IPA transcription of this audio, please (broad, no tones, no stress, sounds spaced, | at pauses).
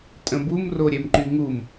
tʼ ə̃ b u m r o ɾʲ ɛ m ǃ y ŋ u m